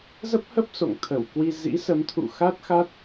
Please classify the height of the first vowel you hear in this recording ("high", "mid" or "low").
mid